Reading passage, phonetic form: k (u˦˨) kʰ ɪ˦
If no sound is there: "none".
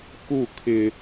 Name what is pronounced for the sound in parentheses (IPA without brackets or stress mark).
u˦˨